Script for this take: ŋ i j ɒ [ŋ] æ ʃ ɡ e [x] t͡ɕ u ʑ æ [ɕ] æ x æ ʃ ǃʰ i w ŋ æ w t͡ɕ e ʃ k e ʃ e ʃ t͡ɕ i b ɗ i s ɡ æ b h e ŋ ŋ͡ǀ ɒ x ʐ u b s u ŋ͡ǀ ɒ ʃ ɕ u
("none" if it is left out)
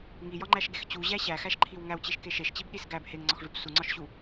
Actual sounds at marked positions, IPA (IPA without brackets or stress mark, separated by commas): ŋ͡ǃ, x, ɕ